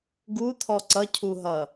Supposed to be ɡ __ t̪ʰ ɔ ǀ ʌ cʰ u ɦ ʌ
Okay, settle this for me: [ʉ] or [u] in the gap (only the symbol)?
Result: u